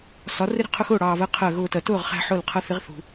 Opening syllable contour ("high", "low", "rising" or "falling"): rising